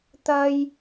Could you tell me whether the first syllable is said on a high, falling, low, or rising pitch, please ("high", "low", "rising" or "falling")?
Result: high